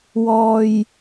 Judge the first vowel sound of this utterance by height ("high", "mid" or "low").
mid